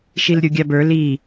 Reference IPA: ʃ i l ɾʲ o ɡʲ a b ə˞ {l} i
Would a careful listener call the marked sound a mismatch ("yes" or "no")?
no